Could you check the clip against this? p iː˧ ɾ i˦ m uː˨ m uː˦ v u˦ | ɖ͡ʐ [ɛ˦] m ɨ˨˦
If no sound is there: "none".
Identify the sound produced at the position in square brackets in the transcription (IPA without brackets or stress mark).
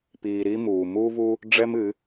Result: ɛ˦